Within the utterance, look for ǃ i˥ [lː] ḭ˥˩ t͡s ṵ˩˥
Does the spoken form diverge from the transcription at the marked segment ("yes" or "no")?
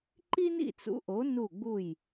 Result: yes